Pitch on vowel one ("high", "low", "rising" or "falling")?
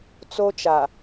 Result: high